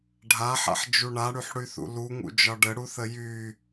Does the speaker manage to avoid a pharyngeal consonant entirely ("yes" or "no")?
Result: no